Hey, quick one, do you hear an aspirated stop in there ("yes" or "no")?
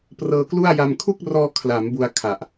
yes